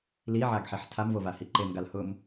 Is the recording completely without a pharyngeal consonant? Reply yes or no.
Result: no